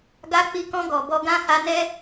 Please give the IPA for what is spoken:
ɡ a˧ k͡p i˧ k ɔ̃˧ ɡ ɔ˨ b ɔ˧ ɡ ã˦ h a˧ n ɛ˦

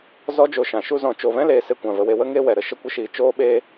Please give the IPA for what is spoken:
z ɔ˦ d͡ʒ o˧ ʃ ã˨ ʃ u˧ z ɔ̃˨ t͡ʃ o˨ v ɛ̃˦ l eː˧ s e˧ kʷ ã˨ v ə˨ w e˧ w ə˦ ŋ e˦ w ɛ˨ ɾ ə˨ ʃ ə˦ kʷ ə˦ ʃ iː˧ t͡ʃ oː˦ ɓ eː˦

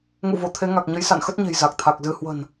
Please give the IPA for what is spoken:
ŋ ṵ˧˨ v o˧˩ t̪ʰ e˨˦ ŋ a˨˩ k̚ ɲ ə˨˦ j s a̰˧˨ n x ə˦˥ t̚ ɲ e̤˨˩ j z a˨˩ k̚ t̪ʰ a˨˩ k̚ z ɨ˧ h w ə̤˨˩ n

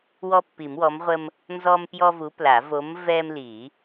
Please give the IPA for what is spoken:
w ɔ˦ pː i˨˩˦ m w ɔ˨˥ m ʁʷ ə˦ m | n z ɔ˦ m p j ɔ˦ v u˨˥ p l a˨˩˦ v o˨˥ m v ɛ˦ m l i˨˩˦

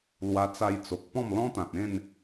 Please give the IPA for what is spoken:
l w a˧ t͡s a˧ j t͡s o˨ k̚ p ɔ̃˥˧ m l ɔ̃˦ t̪ ã˨ t̚ ẽ˥˧ n

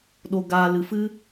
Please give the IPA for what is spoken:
ɗ o˨ ɡ aː˨ l ɨ˨ f ɨ˦

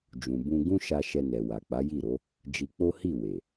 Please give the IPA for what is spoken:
d͡ʒ ũ˨ b ũ˧ ɡ ũ˦ ʃ a˧ ʃ ɛ˧ n ɛ˨ w a˨ k͡p a˨˦ j i˦˨ ɾ o˨˦ | d͡ʒ i˧ k͡p o˦ h i˦˨ w e˨

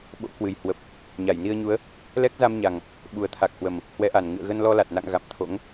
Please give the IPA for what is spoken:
ɓ o̰˧˥ k w ɨ˨˩ j h w ə˨˩ p̚ | ɲ a˧˩ j n i˧ ə̯ ɲ u˨˦ ə̯ | l ɛ˦˥ k̚ z a˧ m ɲ a˨˩ ŋ | ɓ u˨˩ ə̯ t̪ʰ a˨˩ k̚ h w ə˨˩ m | h w ɛ˨˦ ʔ a˨˩ n ŋ ɨ̰˧˨ ə̯ ɣ ə˧ n l ɔ˧ l a˨˩ t̚ n a̰˧˨ ŋ ɣ a̰˧˨ m t̪ʰ o̰˧˥ ŋ

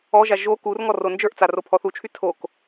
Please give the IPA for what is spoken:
ɔ ʒ a ʒ o k u r ŋ ɔ r o n d͡ʒ ə˞ ʔ t͡s a r o pʰ ɔ θ u t͡ʃʰ y tʰ o k

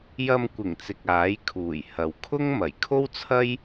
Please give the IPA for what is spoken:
j ɐ˧ m kʷ ɪ˨˩ ŋ t͡s ɪ˨ k̚ aː˨˥ j kʰ uː˨˩ j h ɐ˨ w kʰ ʊ˥ ŋ m ɐ˨˩ j kʰ o˥ w t͡sʰ ɐ˥ j

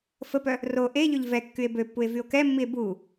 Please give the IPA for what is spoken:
f ə p œ | r o ʔ e ʎ ø ʎ v ɛ kː y e̯ b ø pː u e̯ v y o̯ k ɛ mː i e̯ b u

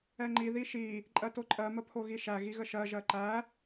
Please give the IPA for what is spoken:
ɛ ŋ͡ǃ i ð i ʃ i | ǃʼ ɜ t o ǃʼ ɜ m ə pʰ o ɣ i ʃ æ ɣ i ɣ ə ʃ ɜ ʒ ɜ ǃ æ

